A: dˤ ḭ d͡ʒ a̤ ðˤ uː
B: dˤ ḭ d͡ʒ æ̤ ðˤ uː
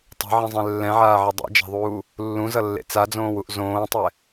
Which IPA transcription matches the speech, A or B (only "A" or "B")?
A